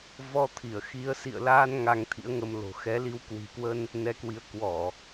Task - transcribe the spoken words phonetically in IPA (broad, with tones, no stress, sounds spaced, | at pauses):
v ɔ˧ t̪ʰ i˧˩ ə̯ x i˨˦ ə̯ s ḭ˧˨ ə̯ l aː˧ n ŋ a˧ ŋ t̪ʰ ḭ˧˥ ə̯ ŋ ə˧ m l o̤˨˩ x ɛ˨˦ l i˨˦ w k w i̤˨˩ k w ə˧ n | n ɛ˨˦ k w i˨˦ ə̯ k w ɔ˧˩˨